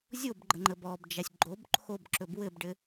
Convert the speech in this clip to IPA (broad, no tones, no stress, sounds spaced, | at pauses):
zʲ o b ɡ͡ǃ ə ŋ͡ǃ ə b ɔ b d͡ʒ a sʲ ɡ͡ǃ o b ǃʰ o b ǁ ɵ b w ɘ b ɖ ɘ